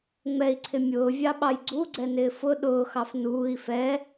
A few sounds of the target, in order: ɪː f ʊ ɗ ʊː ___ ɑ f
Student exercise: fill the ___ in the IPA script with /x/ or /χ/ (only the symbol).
x